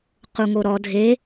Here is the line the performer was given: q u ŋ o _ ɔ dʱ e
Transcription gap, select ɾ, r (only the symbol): ɾ